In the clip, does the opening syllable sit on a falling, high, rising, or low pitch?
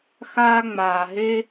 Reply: high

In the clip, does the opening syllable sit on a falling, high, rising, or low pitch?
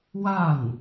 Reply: falling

